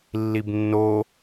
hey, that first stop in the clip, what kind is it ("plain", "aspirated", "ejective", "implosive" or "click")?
plain